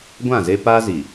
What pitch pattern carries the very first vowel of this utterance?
falling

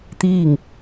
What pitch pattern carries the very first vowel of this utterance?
falling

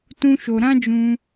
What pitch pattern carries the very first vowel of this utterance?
high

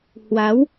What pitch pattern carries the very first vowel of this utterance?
rising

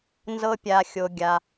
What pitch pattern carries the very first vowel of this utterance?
high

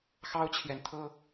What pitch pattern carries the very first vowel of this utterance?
high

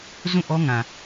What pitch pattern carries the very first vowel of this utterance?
falling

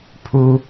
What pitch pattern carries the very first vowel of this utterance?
high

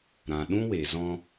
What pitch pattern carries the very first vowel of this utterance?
low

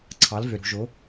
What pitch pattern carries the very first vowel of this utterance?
rising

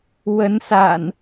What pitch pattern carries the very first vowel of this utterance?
rising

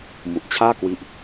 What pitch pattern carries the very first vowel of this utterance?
low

